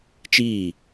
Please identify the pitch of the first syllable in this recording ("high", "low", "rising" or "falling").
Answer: falling